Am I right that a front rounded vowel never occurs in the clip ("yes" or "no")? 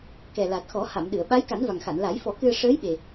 yes